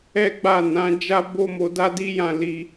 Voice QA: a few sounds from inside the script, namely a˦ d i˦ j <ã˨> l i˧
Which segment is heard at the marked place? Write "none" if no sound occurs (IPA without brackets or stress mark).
ã˦˨